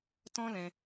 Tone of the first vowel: high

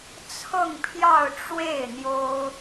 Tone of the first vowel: falling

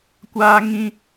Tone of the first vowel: high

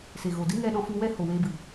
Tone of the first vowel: low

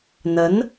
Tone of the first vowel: rising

